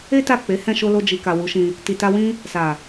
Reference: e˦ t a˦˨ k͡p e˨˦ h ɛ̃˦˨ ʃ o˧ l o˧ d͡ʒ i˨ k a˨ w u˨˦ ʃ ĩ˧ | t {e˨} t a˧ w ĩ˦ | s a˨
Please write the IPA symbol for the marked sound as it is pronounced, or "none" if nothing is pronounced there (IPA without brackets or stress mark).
i˨